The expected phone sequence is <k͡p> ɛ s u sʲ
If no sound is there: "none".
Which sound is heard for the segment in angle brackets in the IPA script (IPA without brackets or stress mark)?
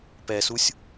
p